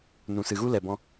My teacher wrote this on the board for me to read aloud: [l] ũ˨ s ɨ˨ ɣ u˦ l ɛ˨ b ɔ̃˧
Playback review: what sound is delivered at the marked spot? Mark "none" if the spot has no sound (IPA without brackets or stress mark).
n